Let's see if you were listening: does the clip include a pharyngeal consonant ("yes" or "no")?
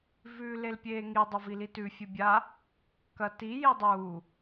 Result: no